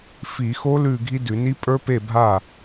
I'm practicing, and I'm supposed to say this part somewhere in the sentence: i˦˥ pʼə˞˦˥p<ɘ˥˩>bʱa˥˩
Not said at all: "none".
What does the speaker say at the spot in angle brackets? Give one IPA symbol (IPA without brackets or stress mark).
e˥˩